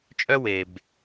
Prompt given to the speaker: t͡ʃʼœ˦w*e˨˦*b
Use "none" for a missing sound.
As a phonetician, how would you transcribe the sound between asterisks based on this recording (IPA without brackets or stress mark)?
e˨